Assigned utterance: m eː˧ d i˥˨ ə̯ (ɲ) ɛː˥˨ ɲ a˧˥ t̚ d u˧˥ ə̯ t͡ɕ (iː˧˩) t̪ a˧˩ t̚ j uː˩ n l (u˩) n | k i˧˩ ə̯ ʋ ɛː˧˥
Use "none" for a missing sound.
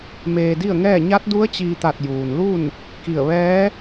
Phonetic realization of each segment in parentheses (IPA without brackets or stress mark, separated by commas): ŋ, iː˧, u˥˨